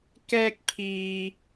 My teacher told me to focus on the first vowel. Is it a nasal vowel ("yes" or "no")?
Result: no